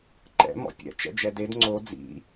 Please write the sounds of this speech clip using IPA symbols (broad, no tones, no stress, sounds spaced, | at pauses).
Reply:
ǃ ɛ̰ m ɔ̰ pʲ ɛ̰ t͡ʃ ɛ̰ d͡ʒ ɛ d e d ŋ͡ǀ o d͡z ḭ